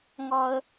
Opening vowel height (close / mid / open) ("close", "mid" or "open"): open